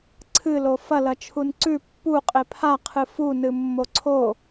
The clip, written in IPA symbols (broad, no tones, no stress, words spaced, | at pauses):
ǀʰɨlo fɐlɐ t͡ʃʰunǀʉ pːu qʼepʰa qʰɨfunɨ mːoǀʰo